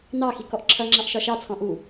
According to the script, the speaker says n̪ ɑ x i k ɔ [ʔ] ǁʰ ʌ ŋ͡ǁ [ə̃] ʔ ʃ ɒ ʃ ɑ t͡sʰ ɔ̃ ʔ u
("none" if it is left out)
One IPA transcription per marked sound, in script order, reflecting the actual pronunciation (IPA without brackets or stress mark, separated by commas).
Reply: ʔ, ɑ̃